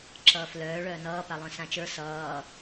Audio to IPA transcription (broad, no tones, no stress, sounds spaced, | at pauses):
ǁ ʌː f l œː ɭ œː n ʌː p a lˠ œ̃ s ã t͡ʃ ə˞ s ʌː